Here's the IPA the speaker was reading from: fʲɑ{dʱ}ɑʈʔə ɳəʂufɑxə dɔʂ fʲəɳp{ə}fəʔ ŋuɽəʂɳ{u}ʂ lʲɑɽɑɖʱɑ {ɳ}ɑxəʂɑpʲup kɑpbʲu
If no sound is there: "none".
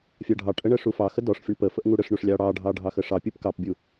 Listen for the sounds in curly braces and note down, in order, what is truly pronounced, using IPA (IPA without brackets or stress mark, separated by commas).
ɖʱ, ə, u, ɖʱ